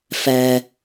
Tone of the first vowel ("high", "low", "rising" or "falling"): low